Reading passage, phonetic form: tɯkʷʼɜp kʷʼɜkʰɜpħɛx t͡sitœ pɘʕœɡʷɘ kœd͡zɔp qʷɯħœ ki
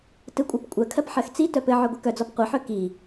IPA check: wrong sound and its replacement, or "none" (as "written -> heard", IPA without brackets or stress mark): ɛ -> ɜ